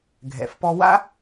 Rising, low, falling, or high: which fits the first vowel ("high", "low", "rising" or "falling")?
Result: low